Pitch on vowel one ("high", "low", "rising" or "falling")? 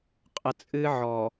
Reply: low